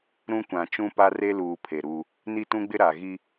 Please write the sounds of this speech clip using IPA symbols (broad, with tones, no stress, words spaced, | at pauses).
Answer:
ɾũ˦kʷã˨ t͡ʃũ˦pa˦re˦luː˨ pʰe˨ɾuː˦ | ni˦tũ˦ɡ͡bɪ˦ ɾa˨ɣi˦